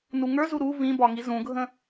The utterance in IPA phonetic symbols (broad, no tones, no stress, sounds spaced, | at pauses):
n u ŋ ə˞ z u ɾ u v ĩ b ɒ ŋ i z ũ ɡʱ ə̃